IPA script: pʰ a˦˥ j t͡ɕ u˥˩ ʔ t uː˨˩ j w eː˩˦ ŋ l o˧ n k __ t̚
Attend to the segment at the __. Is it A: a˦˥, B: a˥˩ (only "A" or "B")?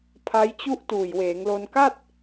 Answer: B